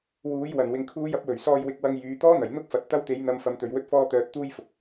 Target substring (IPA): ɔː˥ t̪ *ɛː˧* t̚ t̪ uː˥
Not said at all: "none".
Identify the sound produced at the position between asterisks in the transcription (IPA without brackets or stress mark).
œː˧